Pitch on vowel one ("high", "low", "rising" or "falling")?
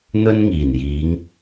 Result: high